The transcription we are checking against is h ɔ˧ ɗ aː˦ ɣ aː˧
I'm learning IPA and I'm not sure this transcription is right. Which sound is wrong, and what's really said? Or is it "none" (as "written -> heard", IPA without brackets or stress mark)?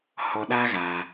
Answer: none